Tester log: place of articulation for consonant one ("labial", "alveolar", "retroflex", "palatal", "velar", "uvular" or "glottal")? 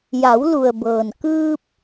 palatal